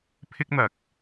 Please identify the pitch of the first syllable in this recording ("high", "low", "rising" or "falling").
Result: high